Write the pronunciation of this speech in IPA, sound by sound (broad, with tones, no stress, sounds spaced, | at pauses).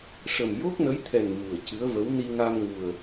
ʂ ə˨˩ m j o˦˥ k̚ n ə˧˥ j t̪ʰ ɛ˨˩ n v u˨˩ ə̯ c ɨ˧˥ ə̯ v ə˧˥ w n i˧ ŋ a˧ m ŋ u˨˩ ə̯